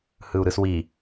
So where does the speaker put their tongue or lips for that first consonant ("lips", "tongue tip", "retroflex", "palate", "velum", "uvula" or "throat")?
throat